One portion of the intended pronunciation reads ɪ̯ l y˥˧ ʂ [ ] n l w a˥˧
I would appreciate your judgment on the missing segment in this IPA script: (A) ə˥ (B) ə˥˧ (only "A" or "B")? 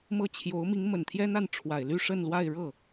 B